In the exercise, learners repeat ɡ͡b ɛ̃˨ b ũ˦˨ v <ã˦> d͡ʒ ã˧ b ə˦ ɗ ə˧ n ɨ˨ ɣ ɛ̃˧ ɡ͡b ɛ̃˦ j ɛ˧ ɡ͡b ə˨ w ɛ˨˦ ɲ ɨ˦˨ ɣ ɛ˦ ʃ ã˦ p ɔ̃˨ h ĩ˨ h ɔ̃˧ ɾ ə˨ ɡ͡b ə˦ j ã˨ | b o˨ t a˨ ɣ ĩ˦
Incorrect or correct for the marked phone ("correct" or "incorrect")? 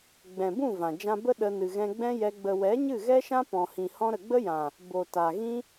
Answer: incorrect